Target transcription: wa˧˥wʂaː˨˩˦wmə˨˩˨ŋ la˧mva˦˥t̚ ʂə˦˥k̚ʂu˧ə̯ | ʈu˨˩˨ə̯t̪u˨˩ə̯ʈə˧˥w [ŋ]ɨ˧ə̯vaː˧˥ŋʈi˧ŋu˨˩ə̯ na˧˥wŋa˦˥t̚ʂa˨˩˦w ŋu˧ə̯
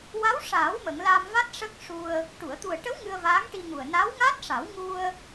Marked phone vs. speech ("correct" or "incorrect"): correct